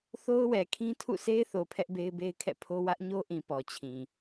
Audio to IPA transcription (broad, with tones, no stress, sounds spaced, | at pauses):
θ o˦ ʊ̯ w ɛ˨ kʰ ĩ˦ tʰ ṵ˦˨ s e˦ ɪ̯ θ o˨ pʰ ɛ˦ ʔ b e˦ ɪ̯ b e˦ ɪ̯ kʰ ɛ̰˦˨ pʰ o˦ w ä˦ ʔ ɲ o˦ ʔ ĩ˨ p ɔ˨ t͡ɕʰ ĩ˨